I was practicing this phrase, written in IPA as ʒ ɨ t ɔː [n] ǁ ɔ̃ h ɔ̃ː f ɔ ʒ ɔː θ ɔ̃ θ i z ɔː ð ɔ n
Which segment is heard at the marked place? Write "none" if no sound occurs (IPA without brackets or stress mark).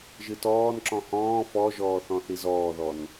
n